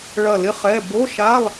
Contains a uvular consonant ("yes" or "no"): yes